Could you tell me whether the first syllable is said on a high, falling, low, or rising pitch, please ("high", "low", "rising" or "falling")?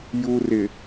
low